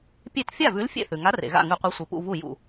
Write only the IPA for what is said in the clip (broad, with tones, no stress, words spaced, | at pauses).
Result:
pʲe˥˩t fʲa˥˩vʉ˨˥l fʲḛ˥˩θʉ˩ŋa˨˥ rḛ˩ɣa̰˥˩ŋʉ˧˩˧qʷe˨˥ sʷi˩pṵ˥˩ vu˥˩ jṵ˥˩